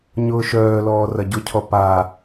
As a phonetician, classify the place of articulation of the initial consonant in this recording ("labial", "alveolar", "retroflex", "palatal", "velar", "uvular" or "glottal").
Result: palatal